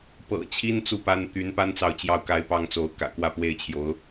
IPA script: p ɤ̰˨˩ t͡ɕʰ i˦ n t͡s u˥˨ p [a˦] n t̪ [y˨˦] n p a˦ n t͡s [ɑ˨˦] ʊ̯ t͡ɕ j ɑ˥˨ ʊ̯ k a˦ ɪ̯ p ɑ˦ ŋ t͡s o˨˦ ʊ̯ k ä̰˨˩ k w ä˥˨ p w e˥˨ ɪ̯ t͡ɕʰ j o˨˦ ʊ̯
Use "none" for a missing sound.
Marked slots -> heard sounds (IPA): a˦, y˨˦, ɑ˨

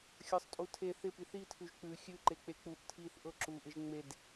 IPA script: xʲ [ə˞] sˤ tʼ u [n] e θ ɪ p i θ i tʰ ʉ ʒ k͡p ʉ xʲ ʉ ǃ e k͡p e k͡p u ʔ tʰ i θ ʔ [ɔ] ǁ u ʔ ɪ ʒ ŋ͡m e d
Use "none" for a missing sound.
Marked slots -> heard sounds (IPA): ə˞, tʰ, ɤ

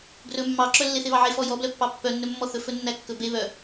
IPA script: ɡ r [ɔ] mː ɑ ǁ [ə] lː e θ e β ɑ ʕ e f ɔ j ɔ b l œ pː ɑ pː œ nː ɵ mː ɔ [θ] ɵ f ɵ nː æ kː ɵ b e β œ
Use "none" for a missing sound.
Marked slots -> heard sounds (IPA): ɵ, œ, θ

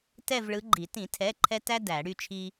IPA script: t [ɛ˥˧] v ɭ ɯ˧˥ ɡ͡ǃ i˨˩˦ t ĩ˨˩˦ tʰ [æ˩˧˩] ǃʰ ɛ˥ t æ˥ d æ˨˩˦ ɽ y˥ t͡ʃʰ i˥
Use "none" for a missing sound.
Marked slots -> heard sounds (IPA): ɛ˥˧, ɛ˩˧˩

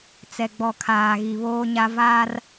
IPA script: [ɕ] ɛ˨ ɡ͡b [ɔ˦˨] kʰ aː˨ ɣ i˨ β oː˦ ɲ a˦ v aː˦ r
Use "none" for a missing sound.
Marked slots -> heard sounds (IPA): t͡s, ɔ˨

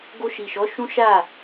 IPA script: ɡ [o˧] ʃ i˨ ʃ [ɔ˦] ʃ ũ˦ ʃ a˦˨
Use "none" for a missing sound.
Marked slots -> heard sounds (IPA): o˧, ɔ˨˦

